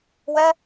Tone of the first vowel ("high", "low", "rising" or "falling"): high